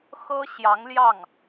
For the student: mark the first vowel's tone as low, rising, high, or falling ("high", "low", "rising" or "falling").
high